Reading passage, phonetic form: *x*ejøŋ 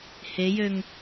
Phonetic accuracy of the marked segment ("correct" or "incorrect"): incorrect